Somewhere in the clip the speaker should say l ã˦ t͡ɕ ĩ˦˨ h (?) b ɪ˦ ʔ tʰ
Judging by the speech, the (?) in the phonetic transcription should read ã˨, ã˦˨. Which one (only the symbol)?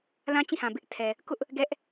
ã˨